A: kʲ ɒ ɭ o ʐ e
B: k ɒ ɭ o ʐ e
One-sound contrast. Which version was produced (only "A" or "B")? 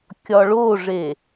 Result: A